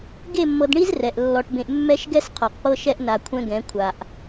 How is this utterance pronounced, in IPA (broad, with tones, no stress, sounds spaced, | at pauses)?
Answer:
ɡ e˦˨ mː ɤ˨ d ɳ i˦ z r ɛ˨ ʔ lː ɔ˨ ʈ b ẽ˨ ʔ mː ɛ˦ ʃ ɡ ɛ˦ s qʰ ɔ˨ q p ɤ˦ ʃ ɛ˦ ʔ n a˨ kʷʰ ɛ̃˦ ɡ ɛ̃˨˦ kʷʰ a˨ ʔ